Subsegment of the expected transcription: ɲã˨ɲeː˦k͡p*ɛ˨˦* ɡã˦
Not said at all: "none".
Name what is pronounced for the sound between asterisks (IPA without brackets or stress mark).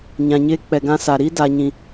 ɛ˨